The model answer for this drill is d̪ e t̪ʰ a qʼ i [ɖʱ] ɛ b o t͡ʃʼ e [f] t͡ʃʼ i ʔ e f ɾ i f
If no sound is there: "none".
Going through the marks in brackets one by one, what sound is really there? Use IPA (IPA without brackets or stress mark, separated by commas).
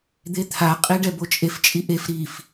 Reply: ɖ, f